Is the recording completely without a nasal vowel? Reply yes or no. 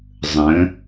no